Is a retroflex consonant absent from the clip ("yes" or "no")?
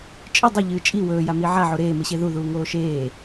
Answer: yes